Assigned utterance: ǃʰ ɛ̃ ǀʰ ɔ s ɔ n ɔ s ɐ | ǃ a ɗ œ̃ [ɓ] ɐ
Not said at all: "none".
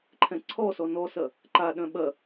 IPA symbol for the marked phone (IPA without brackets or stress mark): ɓ